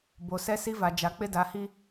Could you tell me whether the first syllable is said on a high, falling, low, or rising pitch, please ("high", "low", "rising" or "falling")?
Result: low